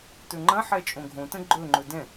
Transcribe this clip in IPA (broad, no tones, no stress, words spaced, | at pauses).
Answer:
tɵŋ͡ǃɐ̃ħɛ t͡ʃʼõɡʱõtə̃ ɡ͡ǃɵŋ͡ǃɵ dɛ̃